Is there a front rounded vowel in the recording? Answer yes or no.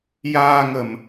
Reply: no